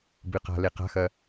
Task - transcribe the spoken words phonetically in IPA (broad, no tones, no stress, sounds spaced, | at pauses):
b ɨ q a̤ l e q a̤ x ɐ